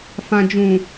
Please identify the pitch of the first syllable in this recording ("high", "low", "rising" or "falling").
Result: low